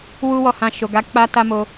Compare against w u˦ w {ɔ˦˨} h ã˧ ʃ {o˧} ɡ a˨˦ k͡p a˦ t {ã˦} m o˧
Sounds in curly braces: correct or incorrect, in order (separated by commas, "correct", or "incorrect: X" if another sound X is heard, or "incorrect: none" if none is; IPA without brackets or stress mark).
correct, incorrect: o˨, incorrect: a˦